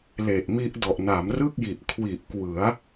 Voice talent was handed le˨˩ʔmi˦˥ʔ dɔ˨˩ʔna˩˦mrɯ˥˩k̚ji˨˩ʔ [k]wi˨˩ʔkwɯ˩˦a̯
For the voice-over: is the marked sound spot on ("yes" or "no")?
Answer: no